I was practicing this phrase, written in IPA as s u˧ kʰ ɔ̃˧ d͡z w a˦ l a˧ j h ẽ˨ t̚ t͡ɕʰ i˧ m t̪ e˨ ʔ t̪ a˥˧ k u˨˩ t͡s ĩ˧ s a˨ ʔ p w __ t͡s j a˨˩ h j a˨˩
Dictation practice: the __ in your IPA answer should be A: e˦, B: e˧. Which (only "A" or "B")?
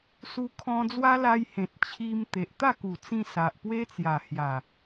A